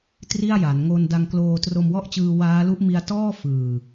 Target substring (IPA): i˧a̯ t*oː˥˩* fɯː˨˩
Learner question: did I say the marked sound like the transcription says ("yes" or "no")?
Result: no